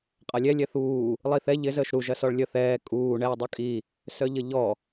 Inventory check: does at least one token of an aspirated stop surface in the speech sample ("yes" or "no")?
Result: no